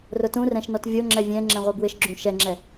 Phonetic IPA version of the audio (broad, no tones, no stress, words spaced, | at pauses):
rʊtũrɛ̃ʃnɔt vʲoŋ͡ǁɛ vʲɛ̃ŋ͡ǁɛ̃ʁʷe bwɪʃɡ͡ǁũ ʃɛŋ͡ǁɛ